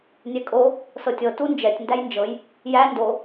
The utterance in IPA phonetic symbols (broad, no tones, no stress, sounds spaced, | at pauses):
nʲ ɛ kʼ o | s ɤ tʲ ɤ t u n d͡ʒ ɛ tʲ n d æ j n d͡ʒ ɤ j | j æ n d o